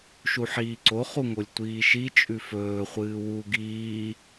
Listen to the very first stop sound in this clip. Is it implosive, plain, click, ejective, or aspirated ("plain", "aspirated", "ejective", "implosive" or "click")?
click